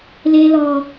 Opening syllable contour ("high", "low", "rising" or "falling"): high